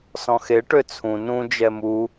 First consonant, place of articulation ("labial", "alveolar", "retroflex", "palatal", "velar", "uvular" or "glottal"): alveolar